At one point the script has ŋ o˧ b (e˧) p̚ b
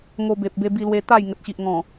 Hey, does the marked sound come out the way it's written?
no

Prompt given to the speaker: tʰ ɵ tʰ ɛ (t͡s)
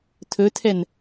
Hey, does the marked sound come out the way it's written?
no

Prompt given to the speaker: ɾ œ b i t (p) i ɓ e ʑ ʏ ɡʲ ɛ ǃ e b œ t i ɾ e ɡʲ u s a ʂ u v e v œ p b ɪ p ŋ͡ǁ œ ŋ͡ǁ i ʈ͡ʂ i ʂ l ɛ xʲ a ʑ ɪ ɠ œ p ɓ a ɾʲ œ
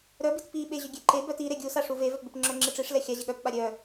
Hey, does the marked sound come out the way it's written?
yes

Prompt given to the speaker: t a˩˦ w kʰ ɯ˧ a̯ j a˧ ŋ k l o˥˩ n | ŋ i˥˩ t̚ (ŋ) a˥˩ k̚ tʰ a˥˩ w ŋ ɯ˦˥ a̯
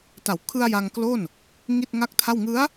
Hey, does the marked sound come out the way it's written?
yes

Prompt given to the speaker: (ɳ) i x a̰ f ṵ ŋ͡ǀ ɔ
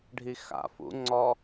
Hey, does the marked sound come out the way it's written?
no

